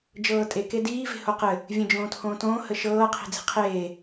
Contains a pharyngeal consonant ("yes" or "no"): no